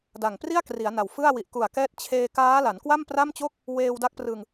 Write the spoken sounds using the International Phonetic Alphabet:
d a˨˩ ŋ p r i˥˩ a̯ k r i˩˦ a̯ n a˨˩ w f ɯ˥˩ a̯ w i˨˩ ʔ k u˨˩ a̯ k ɛː˦˥ t̚ t͡ɕʰ eː˧ k aː˦˥ l a˩˦ n k w a˥˩ m p r a˥˩ m t͡ɕ o˥˩ k̚ | w eː˧ w d a˦˥ k̚ p r ɯ˧ ŋ

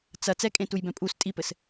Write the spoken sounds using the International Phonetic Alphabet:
t͡s ɐ t͡s ɛ kʼ ẽ t u j b ɛ̃ pʼ u s tʼ i p ɘ s

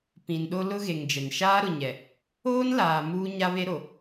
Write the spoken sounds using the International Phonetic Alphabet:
p ĩ˨ n ɗ o˦ l ʊ˦ ɣ e˨ ŋ d͡ʒ ɛ˨ n ʃ aː˦ ɾ ʊ˨ ɲ ɛ˨ | oː˦ n l aː˨ m uː˦ ɲ a˦ β e˦ ɾ o˨

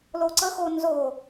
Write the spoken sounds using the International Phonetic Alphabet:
l o ǀ ə x o n z o

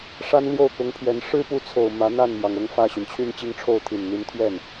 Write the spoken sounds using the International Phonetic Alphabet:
ʂ a˥ n l j o˥˩ ʊ̯ k ʊ˧˥ ŋ pʰ ɥ ɛ˧˥ n ʂ ɻ̩˥ p u˧˥ t͡sʰ o˨˩ ʊ̯ m ä˧˥ n̪ a˥˩ n m j ɑ˩ ŋ ɤ˥˧ ŋ f ä˥˩ ɕ y˩ n t͡ɕʰ y˥˧ n t͡ɕ i˥˧ ŋ ʈ͡ʂʰ o˥˩ ʊ̯ t̪ʰ i˨˩ n n̪ i˧˥ n t̪ʰ ɥ ɛ˥˩ n

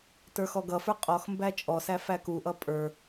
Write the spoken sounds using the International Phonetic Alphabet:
t ə˞ x ɔ ɡ ʌ f ə˞ qʼ ɔ x m b æ t͡ʃʼ ɔ s æ f æ k u ʔ ʌ pʼ ə˞

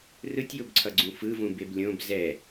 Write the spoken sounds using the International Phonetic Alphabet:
r ɯ tʲ j o b ǀʰ ʌ ɡ͡ǀ ũ f ɯ v ũ b e b lʲ õ b z ɛ

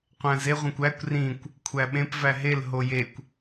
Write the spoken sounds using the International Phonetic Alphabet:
qʷ æ̃ z e ʁʷ ẽ kʷ æ kʷ r ĩ kʷ | kʷʰ æ ɓ ẽ p v æ ɦ e l ɦ o j e kʷ

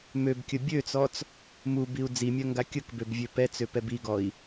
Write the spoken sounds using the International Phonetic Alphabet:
m ø b kʲ ə bʲ ø t͡s ɔ t͡s | m u b i u̯ d͡z i mʲ œ ŋ ɡ a kʲ ə k b ø b vʲ ø p ɛ t͡s ø p ɛ b i ɡ ɔ i̯

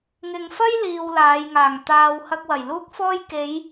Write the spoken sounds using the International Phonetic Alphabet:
ŋ ɪ˨ ŋ f ɐ˥ j l iː˧ w l aː˨˧ j ŋ aː˨˩ ŋ t̪ aː˧ w h ɐ˧ k̚ w ɐ˨˩ j l uː˥ k̚ f ɔː˥ j k e˨˧ j

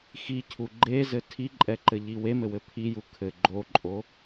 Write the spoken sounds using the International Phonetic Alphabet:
x i cʰ u ɡ͡ǃ e z ɘ tʰ i ǃʼ ɛ ǃ ɘ ʎ i w e m ɘ w ɘ pʰ i j u kʰ ɘ ɡ͡ǃ o ǃʼ o

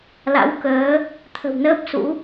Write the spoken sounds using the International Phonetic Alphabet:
l a̰˧˥ w k əː˨˦ | t̪ʰ ə̤˨˩ w n əː˦˥ p̚ s ṵ˧˥

